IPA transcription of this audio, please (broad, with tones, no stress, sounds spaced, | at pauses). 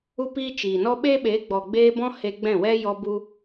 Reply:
u˦ p iː˦ t͡ʃ iː˨ n ɔ˦ ɓ eː˦ ɓ eː˨˦ ɡ͡b ɔ˨ ɡ͡b eː˧ b ɔ̃˧ h e˧ ɡ͡b ɛ̃˦˨ w ɛ˦ j ɔ˧ b u˧